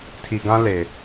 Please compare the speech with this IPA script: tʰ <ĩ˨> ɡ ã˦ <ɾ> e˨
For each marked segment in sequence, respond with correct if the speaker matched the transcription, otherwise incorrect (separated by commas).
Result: incorrect, incorrect